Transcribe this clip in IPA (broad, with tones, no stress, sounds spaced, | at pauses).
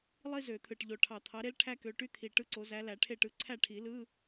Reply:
lˠ i˥ z ø˨˩˦ t̪ʰ ɯ˨˩ ʈ ʎ o˨˩ ʈʰ ɑ˨˩ t̪ʰ ɑ˨˦ ɾ e˥ l ʈʰ æ˥ k ø˨˦ ʈ y˥ t̪ʰ i˨˩ ʈ ɯ˥˨ ǀ o˨˦ z æ˨˦ l æ˨˩˦ ʈʰ e˥˨ ʈ ɯ˨˦ ǀʰ æ˥˨ ʈʰ i˨˩˦ l ɯ˧˥˧